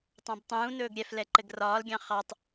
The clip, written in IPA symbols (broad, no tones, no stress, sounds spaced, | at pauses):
tˤ ɑ̃ b tˤ ũː n ɵː ɡ ɾʲ ɛ f l ɛ ǃ ɘ ɡ r ɒː l ɡʲ ɑ̃ χ ɑ tˤ